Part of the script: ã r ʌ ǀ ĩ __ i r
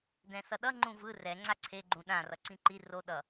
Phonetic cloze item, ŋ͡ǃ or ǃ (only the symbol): ǃ